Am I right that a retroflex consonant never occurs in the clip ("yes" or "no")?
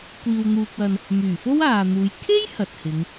yes